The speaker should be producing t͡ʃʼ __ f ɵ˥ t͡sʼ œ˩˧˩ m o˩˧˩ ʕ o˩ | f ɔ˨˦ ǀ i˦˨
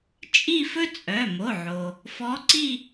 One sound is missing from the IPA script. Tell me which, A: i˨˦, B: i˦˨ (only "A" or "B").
B